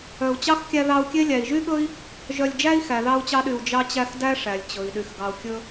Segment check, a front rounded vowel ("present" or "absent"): present